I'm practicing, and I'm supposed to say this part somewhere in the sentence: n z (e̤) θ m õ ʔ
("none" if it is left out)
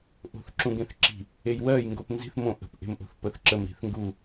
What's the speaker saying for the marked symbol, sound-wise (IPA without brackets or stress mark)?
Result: i̤